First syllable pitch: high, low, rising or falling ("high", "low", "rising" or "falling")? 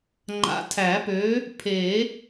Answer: rising